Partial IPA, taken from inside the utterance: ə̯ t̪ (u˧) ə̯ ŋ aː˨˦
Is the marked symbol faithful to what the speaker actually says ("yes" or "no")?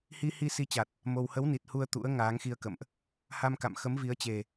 no